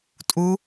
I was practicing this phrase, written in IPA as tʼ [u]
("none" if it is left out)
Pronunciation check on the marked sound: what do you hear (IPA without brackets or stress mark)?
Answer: u